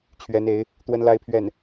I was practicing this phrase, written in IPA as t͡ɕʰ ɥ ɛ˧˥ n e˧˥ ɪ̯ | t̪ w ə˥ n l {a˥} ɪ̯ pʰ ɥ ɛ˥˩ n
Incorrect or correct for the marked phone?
correct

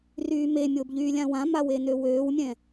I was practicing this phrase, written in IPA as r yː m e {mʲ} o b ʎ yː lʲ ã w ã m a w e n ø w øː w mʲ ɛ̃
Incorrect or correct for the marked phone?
correct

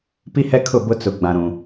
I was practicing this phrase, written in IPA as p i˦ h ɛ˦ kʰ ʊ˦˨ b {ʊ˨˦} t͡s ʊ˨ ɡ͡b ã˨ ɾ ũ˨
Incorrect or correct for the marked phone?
incorrect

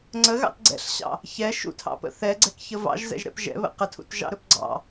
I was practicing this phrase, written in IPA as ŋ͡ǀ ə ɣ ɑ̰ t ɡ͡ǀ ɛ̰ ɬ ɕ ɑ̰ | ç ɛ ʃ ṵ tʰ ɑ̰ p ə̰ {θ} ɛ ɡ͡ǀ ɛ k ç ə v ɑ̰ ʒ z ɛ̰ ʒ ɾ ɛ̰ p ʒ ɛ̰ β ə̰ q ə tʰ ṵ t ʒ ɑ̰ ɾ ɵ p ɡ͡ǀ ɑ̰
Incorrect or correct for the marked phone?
correct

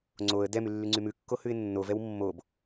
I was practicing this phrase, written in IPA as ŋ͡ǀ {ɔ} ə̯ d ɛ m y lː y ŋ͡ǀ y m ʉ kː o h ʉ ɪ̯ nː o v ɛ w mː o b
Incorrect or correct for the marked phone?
incorrect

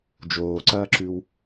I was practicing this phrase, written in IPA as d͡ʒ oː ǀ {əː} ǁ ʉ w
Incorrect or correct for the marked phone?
incorrect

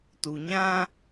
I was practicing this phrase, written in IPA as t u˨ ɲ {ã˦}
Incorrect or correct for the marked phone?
correct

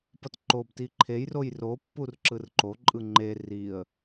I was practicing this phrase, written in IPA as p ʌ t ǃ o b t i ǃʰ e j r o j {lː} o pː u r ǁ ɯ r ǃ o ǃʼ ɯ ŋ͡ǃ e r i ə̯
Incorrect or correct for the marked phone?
incorrect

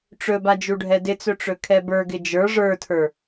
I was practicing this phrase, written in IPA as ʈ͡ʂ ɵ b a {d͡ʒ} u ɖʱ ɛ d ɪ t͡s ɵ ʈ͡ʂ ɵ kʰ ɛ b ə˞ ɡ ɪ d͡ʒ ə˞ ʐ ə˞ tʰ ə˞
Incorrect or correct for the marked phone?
correct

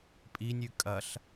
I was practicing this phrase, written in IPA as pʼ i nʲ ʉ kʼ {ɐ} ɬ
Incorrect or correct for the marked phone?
correct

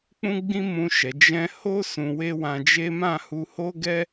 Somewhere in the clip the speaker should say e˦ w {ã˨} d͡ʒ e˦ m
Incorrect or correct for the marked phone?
incorrect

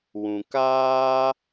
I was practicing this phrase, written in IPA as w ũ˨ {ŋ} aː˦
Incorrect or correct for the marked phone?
incorrect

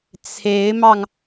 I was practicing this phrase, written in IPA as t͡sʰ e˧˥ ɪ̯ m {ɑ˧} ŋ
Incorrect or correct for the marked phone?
correct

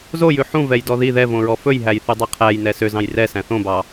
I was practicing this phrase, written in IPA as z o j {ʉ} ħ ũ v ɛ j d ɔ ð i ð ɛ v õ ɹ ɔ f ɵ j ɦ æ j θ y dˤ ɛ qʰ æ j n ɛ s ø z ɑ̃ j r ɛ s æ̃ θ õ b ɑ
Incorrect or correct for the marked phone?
correct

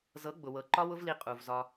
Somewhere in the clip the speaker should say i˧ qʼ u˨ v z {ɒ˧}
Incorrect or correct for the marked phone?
correct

